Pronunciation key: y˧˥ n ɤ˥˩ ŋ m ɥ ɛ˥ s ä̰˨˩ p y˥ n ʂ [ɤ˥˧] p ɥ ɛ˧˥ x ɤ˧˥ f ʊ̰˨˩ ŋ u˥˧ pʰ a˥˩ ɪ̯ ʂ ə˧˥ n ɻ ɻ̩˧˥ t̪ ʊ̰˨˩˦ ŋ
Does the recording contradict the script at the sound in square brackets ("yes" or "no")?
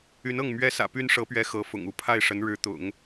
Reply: yes